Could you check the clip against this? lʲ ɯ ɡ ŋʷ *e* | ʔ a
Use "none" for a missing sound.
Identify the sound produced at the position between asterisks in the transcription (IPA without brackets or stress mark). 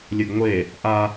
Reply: e